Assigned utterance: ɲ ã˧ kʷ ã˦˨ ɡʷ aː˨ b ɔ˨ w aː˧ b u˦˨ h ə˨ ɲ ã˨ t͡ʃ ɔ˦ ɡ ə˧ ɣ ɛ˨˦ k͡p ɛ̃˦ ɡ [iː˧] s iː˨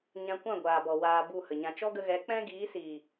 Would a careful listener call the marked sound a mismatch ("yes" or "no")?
yes